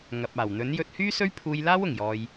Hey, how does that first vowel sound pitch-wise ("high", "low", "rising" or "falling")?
low